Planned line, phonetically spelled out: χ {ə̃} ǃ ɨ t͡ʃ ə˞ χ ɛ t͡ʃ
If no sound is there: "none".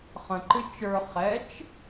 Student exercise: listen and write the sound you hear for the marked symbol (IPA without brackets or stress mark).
ə̃